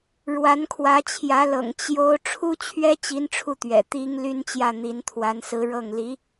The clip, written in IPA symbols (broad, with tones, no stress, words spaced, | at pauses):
ɻwa˧˥nkʰwä˧˥t͡ɕʰjä˧˥lɤ̰˨˩ŋ t͡ɕjo˥ʊ̯ ʈ͡ʂʰu˥t͡ɕʰɥɛ˥ t͡ɕi˥n ʈ͡ʂʰu˥˩t̪ɥɛ̰˨˩ t̪i˥ŋ ly˥nt͡ɕjä˥˩n̪i˧˥nt̪ʰwa˧˥n sɹ̩˧˥ɻɤ˥˩ŋ li˧˥